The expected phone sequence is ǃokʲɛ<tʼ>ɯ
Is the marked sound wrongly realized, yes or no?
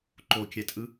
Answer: no